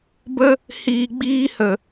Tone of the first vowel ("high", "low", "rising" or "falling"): high